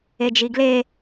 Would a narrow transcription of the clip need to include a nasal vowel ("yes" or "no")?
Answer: no